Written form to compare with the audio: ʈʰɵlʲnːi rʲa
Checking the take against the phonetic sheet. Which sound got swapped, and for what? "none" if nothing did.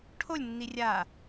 ɵ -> o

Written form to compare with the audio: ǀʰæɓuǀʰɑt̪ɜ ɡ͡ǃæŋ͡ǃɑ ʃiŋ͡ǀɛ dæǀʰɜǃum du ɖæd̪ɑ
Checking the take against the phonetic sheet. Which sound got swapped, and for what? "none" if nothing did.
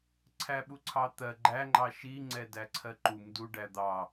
none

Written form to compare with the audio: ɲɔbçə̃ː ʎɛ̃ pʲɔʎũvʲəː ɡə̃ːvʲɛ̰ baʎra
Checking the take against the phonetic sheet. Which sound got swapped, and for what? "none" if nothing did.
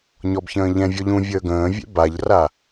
pʲ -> vʲ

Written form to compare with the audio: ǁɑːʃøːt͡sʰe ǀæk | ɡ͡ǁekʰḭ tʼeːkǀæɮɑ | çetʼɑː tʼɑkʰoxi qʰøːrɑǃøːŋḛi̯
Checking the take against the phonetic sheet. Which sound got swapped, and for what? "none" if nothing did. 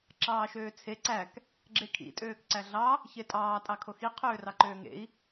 eː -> øː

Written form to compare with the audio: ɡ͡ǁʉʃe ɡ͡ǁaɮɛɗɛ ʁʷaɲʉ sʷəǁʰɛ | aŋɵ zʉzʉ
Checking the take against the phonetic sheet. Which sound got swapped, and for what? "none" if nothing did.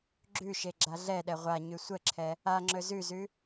ŋ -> ŋ͡ǁ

